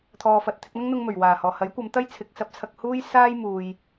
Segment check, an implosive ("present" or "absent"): absent